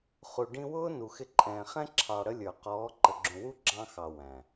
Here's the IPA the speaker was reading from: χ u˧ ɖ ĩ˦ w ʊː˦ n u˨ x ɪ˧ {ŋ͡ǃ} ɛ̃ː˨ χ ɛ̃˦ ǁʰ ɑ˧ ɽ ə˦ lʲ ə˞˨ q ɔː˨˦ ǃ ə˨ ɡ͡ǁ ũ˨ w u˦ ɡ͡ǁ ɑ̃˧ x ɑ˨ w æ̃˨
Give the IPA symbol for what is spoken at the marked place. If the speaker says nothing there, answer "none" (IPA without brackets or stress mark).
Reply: ǃʼ